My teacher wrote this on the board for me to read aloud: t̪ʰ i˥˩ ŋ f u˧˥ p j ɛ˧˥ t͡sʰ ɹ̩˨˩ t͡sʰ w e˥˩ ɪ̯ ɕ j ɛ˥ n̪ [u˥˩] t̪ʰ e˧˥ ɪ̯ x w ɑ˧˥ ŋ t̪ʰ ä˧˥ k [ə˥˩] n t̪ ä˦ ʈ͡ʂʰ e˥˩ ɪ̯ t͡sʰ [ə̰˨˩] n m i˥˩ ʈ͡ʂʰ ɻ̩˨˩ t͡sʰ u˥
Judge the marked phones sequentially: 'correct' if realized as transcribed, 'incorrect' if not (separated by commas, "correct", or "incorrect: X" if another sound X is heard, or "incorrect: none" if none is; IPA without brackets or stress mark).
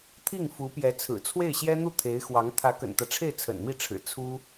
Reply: correct, incorrect: ə̰˨˩, correct